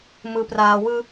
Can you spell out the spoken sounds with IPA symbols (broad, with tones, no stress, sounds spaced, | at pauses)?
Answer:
m ɯ˨ p r aː˨ w ɯ˦